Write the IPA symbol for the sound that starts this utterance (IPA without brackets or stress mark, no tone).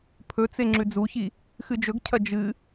pʰ